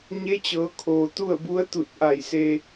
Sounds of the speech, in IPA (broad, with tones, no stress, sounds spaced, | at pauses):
ɲ e˧˥ t͡ɕ ɤː˩˧ kʰ oː˩ t̪ u˥˨ ə̯ b u˧˥ ə̯ t̪ u˧˩ t̚ ʔ a˧˩ j s e˧